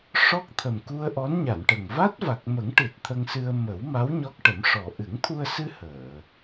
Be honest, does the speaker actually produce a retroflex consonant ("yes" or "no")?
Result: yes